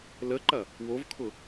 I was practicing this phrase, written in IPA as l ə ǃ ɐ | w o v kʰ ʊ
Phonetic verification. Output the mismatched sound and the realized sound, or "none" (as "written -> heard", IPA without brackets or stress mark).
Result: none